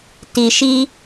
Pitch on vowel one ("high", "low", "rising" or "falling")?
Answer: low